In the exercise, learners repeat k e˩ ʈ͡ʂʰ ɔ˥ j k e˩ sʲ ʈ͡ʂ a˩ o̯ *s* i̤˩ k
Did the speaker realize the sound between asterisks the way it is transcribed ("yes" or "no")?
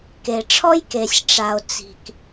no